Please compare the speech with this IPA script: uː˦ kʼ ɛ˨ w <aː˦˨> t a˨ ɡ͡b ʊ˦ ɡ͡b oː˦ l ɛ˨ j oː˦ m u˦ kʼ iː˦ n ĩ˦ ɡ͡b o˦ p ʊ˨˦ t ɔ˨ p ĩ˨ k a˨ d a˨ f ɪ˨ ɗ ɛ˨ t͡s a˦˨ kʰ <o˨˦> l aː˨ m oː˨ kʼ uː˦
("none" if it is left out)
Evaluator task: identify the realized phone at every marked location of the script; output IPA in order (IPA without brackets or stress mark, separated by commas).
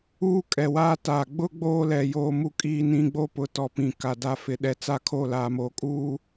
aː˦, o˦˨